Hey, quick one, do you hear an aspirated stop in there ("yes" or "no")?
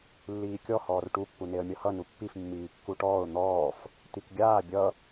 no